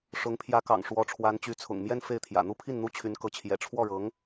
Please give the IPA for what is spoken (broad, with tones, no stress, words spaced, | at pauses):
ʂʊ˧˥ŋ pʰjä˧˥kɑ̰˨˩ŋ ʂwɔ˧˥ʈ͡ʂʰwa˧˥n t͡ɕy˧˥t͡sʰʊ̰˨˩ŋ mjɛ˥˧n fe˥˩ɪ̯t̪ʰjä̰˨˩ n̪u˥pʰi˥˩n n̪u˥t͡ɕʰy˧˥nkɤ˧˥ t͡ɕʰjɛ̰˨˩ʈ͡ʂʰwɔ˥˩ɻɤ˧˥ŋ